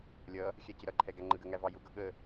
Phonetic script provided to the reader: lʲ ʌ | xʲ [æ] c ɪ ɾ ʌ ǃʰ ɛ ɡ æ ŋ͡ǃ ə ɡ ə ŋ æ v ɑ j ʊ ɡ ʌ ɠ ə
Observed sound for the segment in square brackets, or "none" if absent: æ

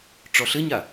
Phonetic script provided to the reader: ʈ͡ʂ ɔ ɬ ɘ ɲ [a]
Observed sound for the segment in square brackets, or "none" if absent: a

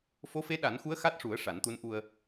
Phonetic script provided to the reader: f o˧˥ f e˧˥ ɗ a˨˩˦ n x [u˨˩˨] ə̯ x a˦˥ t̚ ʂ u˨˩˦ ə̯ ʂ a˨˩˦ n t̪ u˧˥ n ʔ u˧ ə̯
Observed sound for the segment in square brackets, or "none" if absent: u˧˥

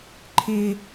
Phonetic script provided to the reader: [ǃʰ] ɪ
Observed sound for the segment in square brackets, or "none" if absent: ǃʰ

